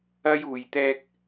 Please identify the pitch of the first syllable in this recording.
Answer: high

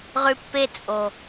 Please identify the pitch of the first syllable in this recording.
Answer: high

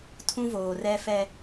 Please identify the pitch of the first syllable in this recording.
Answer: high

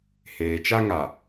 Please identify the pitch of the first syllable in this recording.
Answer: low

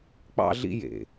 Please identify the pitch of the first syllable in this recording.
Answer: high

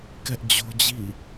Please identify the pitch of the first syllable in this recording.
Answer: high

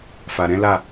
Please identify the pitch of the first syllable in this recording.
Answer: low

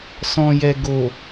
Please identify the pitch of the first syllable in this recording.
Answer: low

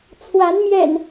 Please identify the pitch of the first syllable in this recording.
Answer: rising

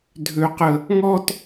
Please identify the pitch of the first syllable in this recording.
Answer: high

